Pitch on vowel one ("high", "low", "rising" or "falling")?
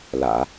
low